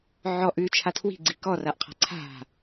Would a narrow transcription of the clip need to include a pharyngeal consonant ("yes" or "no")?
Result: yes